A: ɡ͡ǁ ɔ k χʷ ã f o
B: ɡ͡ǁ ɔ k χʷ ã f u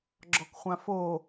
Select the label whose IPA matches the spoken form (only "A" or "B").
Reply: A